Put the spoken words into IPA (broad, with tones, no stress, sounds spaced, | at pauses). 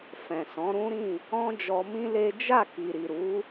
f ɛ̃˨ s ɔ̃˨˦ ɾ ũ˦ ɾ ĩ˦˨ | ɔ̃˦ d͡ʒ ɔ˧ m ĩ˦ l e˦ d͡ʒ a˦˨ k i˨ ɾ i˨ ɾ u˨˦